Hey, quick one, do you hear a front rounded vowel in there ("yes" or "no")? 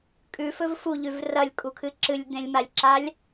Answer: no